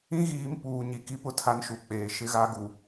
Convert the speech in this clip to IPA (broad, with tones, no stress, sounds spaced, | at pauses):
ĩ˦ ɣ iː˨˦ m p uː˨ ɲ i˨ k i˦ p ʊ˦˨ tʰ a˦ n ʃ u˨ k͡p eː˨ ʃ ɪ˦ ɣ a˦ ɡ u˨